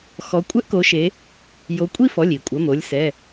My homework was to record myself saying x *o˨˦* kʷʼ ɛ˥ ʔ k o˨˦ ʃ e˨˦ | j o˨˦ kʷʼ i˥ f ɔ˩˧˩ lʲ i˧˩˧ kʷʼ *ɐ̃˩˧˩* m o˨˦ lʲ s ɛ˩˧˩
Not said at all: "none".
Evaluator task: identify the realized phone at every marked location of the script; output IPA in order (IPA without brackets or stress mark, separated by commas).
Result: ɔ˨˦, ɐ˩˧˩